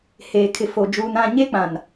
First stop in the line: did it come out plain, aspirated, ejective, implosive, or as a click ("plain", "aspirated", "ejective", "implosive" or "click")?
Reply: aspirated